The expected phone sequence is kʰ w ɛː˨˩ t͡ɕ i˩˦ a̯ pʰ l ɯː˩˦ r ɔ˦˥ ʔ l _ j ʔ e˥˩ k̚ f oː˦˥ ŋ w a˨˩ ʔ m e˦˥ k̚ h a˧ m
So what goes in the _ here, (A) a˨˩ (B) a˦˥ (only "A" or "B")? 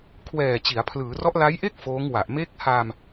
B